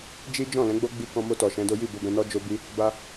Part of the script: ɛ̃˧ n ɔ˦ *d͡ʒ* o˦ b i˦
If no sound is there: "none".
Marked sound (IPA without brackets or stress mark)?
d͡ʒ